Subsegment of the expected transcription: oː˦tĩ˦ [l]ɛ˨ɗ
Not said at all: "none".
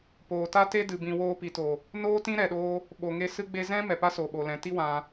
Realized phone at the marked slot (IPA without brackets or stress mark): ɾ